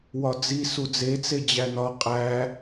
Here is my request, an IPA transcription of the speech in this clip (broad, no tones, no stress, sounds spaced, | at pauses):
w ɒ d͡z i s u d͡z e t͡s e d͡ʑ æ n ɒ qʼ æ